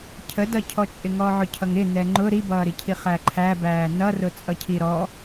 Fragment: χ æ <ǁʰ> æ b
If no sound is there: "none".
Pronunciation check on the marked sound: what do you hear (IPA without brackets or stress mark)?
ǃʰ